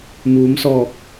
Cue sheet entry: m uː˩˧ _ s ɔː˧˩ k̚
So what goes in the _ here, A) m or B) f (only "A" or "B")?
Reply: A